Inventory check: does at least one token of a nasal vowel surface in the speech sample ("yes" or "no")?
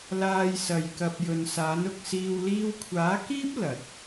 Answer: no